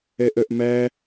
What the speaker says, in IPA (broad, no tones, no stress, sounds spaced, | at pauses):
ɛ ʔ œ ʔ m æ